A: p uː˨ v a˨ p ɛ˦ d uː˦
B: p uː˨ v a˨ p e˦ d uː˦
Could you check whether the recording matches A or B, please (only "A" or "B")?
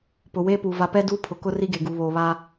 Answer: A